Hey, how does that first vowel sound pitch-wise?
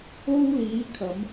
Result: high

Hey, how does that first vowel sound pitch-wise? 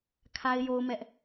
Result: high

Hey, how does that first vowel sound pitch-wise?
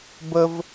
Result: high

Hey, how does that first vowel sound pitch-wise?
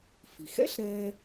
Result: low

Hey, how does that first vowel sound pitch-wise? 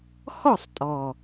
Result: falling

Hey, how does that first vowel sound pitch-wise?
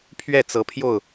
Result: falling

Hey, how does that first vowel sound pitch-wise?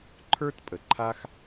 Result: high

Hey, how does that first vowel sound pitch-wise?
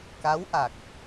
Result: rising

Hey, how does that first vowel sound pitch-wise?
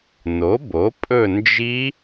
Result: rising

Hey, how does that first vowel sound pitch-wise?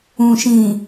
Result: low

